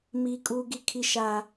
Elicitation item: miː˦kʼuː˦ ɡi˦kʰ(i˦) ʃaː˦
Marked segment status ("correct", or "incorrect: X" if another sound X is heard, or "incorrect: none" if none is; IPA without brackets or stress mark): correct